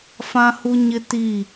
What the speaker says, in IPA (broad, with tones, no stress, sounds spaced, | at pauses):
f ã˦ h u˦ ɲ ɪ˦ t i˦˨